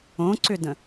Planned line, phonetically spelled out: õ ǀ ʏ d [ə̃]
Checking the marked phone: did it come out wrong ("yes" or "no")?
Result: no